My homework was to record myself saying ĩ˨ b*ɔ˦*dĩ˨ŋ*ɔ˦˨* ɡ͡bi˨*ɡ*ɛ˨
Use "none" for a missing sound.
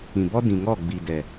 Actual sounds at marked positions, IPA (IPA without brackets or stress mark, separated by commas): ɔ˦, ɔ˦˨, d